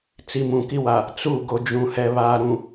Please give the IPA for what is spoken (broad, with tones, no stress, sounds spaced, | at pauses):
t͡s i˨ m ũ˨ k i˦ w a˨ | t͡s u˦˨ ɡ o˨ d͡ʒ ũ˨ h ɛ˨ β aː˨ ɾ ũ˨